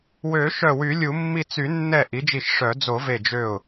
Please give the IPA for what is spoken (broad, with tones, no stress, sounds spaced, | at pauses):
w ø˨˩˦ ʃ œ˧˩ w y˨˩˦ lʲ u˨˩˦ mː i˧˩ t͡s y˨˩˦ nː ɛ˧˩ ʔ i˩˥ d͡ʒ i˧˩ ʃ ʂ œ˨˩˦ d͡z o˨˩˦ v e˧˩ d͡ʒ ø˧˩ ʊ̯